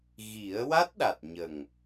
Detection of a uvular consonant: absent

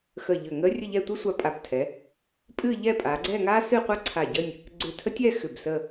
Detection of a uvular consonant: present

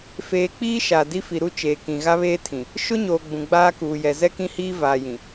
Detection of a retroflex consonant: absent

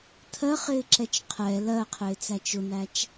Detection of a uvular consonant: present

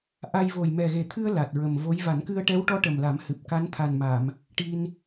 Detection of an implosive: absent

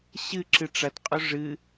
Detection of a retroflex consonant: present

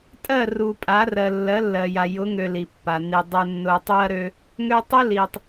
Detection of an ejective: present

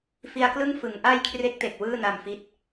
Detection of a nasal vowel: absent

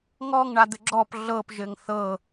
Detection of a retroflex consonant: present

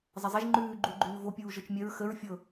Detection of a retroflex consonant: absent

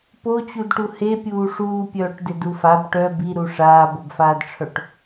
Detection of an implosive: absent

